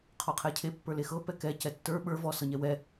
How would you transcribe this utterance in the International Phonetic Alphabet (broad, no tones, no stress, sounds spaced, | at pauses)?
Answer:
qʰ ɔ qʰ ɛ cʰ e pː ə˞ l e x ɤ p ɛ k ɛ c ɛ tː ə˞ ɓ ə˞ v ɔ s ɤ ɲ ɛ w ɛ